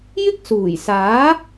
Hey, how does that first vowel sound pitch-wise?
high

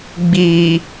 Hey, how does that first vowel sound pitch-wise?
low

